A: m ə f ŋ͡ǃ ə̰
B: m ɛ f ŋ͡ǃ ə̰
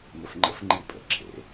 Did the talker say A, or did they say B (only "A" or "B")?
A